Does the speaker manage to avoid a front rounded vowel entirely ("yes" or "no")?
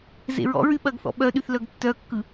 no